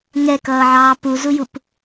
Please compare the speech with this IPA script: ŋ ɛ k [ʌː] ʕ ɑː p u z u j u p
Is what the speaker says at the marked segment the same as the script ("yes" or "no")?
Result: yes